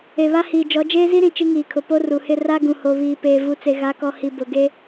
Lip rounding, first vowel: unrounded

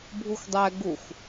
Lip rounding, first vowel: rounded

